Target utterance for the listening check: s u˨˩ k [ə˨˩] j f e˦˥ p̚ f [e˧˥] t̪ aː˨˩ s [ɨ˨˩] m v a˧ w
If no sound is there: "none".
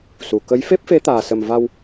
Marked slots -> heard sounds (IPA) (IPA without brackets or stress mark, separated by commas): ə˧˥, e˧˥, ə˨˩